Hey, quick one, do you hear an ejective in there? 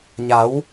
no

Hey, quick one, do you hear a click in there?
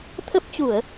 no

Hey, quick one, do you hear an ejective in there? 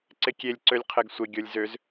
no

